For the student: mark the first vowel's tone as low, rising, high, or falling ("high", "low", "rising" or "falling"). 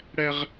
high